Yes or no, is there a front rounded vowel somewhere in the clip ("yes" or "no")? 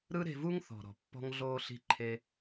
no